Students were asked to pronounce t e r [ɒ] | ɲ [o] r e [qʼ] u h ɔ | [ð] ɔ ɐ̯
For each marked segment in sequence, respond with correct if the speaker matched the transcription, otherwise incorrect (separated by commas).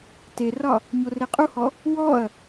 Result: correct, correct, correct, incorrect